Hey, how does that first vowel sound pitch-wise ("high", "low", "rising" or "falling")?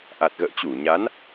low